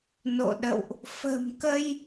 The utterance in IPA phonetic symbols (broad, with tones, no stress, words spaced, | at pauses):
no̰˧˨ɗə̰˧˨wʔ | fə̤˨˩mkə˧j